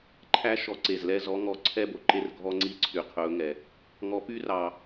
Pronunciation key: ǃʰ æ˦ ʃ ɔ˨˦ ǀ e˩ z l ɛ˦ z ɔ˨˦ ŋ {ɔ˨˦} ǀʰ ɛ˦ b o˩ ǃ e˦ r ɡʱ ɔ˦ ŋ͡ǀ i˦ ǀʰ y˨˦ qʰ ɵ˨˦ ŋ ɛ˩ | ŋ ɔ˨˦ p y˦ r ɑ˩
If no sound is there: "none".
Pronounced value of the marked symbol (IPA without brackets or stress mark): ɔ˨˦